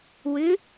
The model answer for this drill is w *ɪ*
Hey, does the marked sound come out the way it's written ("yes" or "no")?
no